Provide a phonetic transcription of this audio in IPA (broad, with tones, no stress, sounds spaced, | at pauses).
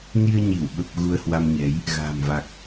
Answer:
n i˧ ə̯ ɲ i˧˩ w ɓ ə˨˩ p̚ ɣ u˧ ə̯ h w a˧ m ɲ ɛ˨˦ j | ɣ a̤ː˨˩ m v a˨˩ k̚